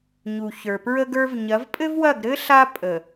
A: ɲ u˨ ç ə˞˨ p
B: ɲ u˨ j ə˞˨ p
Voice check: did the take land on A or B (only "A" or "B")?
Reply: A